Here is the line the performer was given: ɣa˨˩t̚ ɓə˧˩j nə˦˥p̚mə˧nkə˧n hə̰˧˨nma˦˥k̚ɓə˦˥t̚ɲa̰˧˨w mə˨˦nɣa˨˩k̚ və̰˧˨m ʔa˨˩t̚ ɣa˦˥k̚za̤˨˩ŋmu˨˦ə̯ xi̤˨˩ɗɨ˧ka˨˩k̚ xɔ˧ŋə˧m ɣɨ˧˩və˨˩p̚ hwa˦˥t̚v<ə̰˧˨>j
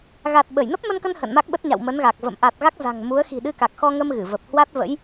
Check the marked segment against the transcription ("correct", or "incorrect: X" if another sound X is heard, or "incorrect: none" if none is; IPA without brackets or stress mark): incorrect: ə̰˧˥